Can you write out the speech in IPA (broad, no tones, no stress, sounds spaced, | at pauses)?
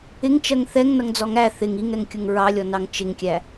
ɪ ŋ t͡ʃ ɜ ŋ θ ɛ ŋ n ʌ ŋ d͡z ɔ ŋ æ θ ɪ ŋ i ŋ ɛ ŋ kʲ ʊ ŋ ɹ ɑ lʲ ɔ n ɑ ŋ t͡ʃ ɪ ŋ kʲ æ